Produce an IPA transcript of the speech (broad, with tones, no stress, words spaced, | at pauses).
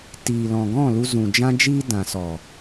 tiː˨lɔ̃˨ɡɔ̃˦˨lu˧ zũ˨d͡ʒã˦d͡ʒiː˦ dã˨sɔ˨